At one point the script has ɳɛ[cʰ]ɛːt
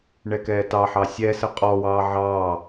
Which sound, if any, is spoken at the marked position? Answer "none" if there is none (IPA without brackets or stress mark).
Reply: k